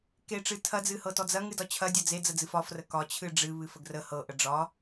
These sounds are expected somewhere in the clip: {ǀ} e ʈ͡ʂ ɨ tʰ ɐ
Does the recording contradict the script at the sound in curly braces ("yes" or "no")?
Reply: yes